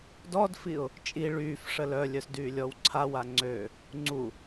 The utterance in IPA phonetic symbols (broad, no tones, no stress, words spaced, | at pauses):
dɔdfiʊ̯ | t͡ʃʼi ɭyːf ʂəlœlʲœs dyːlʲɔwǀʰawa ŋ͡ǀø | ŋ͡ǀu